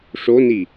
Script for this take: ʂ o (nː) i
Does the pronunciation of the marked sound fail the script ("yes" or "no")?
yes